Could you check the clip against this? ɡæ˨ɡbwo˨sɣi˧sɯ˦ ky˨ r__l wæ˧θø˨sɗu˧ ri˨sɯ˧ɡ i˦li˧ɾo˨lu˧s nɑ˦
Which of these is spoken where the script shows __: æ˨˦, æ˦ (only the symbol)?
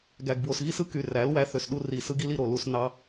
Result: æ˨˦